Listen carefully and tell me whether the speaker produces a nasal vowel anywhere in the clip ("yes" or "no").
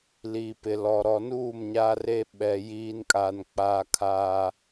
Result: no